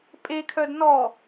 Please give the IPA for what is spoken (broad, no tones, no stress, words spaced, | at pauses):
pʼekʰœd nɔ